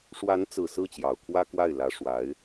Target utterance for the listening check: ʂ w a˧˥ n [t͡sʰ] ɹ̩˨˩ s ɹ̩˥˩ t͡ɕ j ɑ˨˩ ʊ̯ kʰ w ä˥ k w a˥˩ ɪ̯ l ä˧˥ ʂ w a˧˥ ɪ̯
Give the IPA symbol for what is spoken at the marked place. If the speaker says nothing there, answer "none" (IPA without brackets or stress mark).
t͡s